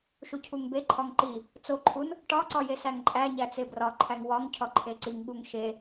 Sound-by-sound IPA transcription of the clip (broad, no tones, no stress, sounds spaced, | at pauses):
ʃ u cʰ u ŋ b e ǃʰ ɒ ŋ ǃ i | t͡s o ǃʰ u n | ʈ ɒ ǀ ɒ j e s æ ŋ ǃʼ æ ɲ æ t͡s e b r ɒ ǃʰ æ ŋ w ɒ ŋ cʰ ɒ ǃʰ e ǀ i ŋ ɠ u ŋ ʃ e